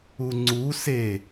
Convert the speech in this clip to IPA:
uŋ͡ǀu se

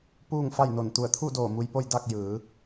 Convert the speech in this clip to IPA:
puː˥˨ŋfa˥˨jno˧˩n t̪u˧˩ə̯t̪ʰu˥˨doː˧˩ mu˧jpo˥˨j da˥˨k̚jɯː˩˧

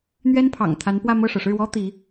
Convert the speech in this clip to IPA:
n̪ɥɛ˥npʰɑ̰˨˩ŋt̪ʰa˧˥npwä˥˧ mɤ˥˩ʂɤ˩ ʂɻ̩˥˩wɔ˥ t̪i˧˥

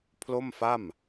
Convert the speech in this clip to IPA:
pʰlo˥˩mfa˥˩m

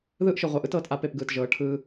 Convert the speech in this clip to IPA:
ðɯː˦ʔʃɯ˨ʁʷa˨ʔɯ˦t ɤː˦tʔa˦ pe˦˨pɡɯː˨tʒɤː˨˦ ʈʰɯː˦

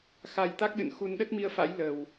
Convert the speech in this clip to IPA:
xa˧jt̪a˦˥k̚ɗɨ̰˧˨n xu˧n ɗə˦˥t̚mi˧ə̯fa̰˧˥j lə˨˩w

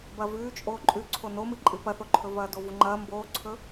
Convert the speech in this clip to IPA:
bɐvʉː t͡ʃʼoːǃʼʉ ǀʰonomɨǃʼɨ pɐθoǃʰɵvɐː dovuŋ͡ǃɐː mboːǀʰɵ

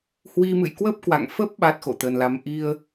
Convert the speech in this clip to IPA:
hwi˧mɨ̰˧˨j kwə˦˥p̚kwa̰˧˨ŋfə˦˥p̚ ɓa˦˥t̚xo̰˧˨t̪ə˨˩nla˨˦m ʔi˧ə̯

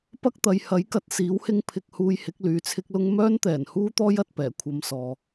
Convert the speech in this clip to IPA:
pɐ˥k̚t̪ɐ˨jhɐ˨˥jkɐ˧t̚ siː˨˥whɪ˥ŋ pʰɪ˧k̚huː˧j hɪ˨˥k̚lyː˨t͡sʰɪ˥k̚lʊ˥ŋ mœː˥nt̪ɛː˨˩nhuː˥t̪ɔː˥j ɐ˨t̚pɛː˨˩ kʷʰɐ˧msɔː˨

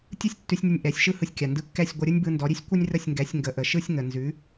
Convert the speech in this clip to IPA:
tʲɯ˥sʲtːʉ˧sʲnʲʌ˧nʲ ʔɛ˩˥sʲʃɯ˥ hɯ˧sʲ kʲa˩ndɯ˧kːɛ˥˩sʲ ɡʷʌ˧ ɾʲɯ˥nʲbɯ˧ndɔ˩˥ɾʲʉ˥sʲ kʷə˥nʲrə˥˩sʲŋɡɛ˩˥sʲ ŋɡə˩˥ʔə˩ʃɯ˥sʲ ŋə˩nzʉ˩˥

